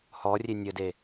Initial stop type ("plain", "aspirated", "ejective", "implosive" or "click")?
plain